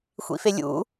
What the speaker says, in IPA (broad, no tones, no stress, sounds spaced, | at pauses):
xʷ ḭ f e lʲ ṵ